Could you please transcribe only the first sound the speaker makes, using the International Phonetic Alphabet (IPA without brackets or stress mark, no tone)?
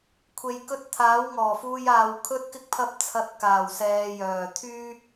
kʷʰ